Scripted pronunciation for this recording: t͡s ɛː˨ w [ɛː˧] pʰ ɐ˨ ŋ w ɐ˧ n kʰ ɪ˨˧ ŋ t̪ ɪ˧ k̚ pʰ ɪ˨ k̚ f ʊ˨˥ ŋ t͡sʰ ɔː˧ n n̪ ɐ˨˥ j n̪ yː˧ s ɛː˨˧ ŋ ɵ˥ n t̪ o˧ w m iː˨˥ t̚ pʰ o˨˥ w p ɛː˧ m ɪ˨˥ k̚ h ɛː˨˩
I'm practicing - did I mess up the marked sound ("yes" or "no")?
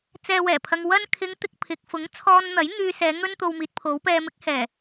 yes